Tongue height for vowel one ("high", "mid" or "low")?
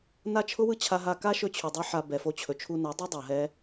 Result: low